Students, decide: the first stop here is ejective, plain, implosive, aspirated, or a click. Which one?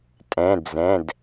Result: ejective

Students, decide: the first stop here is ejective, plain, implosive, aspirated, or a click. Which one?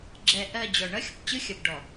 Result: click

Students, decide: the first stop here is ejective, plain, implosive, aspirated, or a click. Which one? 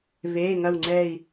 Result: click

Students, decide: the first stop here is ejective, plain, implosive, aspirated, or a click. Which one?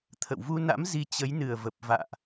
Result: aspirated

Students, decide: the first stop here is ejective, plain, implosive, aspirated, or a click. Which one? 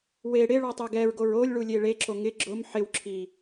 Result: plain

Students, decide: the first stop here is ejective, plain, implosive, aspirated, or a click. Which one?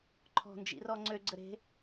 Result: click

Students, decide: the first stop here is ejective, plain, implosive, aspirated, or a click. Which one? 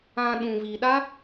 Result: implosive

